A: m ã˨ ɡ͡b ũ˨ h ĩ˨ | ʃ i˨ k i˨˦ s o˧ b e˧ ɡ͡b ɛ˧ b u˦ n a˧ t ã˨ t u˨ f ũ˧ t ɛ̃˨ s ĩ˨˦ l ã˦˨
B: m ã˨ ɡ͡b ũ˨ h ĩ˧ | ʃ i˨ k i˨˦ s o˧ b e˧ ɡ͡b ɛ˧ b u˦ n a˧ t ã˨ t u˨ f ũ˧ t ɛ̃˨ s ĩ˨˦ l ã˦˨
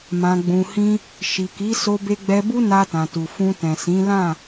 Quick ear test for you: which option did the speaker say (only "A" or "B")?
B